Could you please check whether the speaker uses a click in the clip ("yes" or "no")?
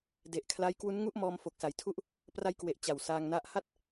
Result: no